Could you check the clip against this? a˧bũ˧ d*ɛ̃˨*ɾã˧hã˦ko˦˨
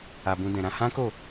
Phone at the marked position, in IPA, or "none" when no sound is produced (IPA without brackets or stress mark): ɛ̃˨